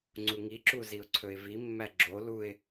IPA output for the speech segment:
ŋ͡ǀuŋiǁu ziʊ̯ǀʰɵɪ̯vimːæ ɡ͡ǁo luɪ̯

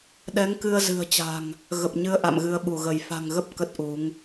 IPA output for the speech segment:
ɗɛ˨˦ŋkɨ˧ə̯zɨ̤˨˩ə̯t͡ɕa̤˨˩ŋ | ɣə˨˩p̚ɲɨ˧ə̯ ʔa̰˧˨mɣɨ˨˦ə̯ɓu˧˩ɣə˧˩j fa̤˨˩ŋɣə˦˥p̚ kə˦˥t̚ʔu˨˦ŋ

